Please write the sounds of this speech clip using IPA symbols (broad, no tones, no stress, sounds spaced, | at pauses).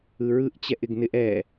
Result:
ɯ ɹ ɯ ʔ t͡ɕ ɛ ʔ ɪ ɡ n ɪ ʔ ɛ